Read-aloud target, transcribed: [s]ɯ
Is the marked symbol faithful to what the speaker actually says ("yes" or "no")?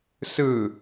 yes